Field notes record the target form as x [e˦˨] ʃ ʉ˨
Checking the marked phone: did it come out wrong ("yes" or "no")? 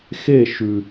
no